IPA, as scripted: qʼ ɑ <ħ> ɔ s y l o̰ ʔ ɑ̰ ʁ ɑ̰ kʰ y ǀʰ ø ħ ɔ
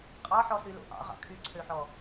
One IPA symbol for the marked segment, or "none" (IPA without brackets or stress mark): ħ